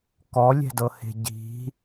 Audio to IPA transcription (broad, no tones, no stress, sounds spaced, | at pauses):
k ɔ lʲ ɛ̤ d ɤ h e̤ ɟ i̤